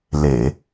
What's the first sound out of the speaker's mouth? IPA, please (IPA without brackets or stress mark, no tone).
l